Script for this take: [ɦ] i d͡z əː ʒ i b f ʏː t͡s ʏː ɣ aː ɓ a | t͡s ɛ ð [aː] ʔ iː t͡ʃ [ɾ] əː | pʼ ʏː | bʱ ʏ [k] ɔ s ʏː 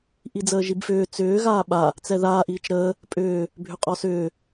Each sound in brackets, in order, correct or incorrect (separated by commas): incorrect, correct, correct, incorrect